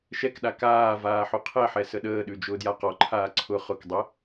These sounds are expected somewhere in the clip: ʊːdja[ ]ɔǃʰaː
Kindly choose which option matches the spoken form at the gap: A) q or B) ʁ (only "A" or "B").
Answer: A